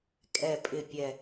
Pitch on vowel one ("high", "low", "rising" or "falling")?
low